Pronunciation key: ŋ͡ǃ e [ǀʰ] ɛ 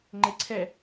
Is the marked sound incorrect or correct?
correct